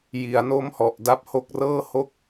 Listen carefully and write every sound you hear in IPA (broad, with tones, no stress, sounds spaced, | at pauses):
j i˩˦ a̯ n o˦˥ m h ɔ˨˩ ʔ d a˦˥ p̚ h o˦˥ k̚ r ɤː˥˩ h o˥˩ k̚